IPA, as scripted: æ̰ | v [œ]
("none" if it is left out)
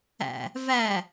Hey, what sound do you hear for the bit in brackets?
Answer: æ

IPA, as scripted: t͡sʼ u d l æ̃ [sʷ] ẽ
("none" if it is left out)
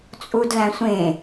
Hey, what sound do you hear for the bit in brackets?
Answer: sʷ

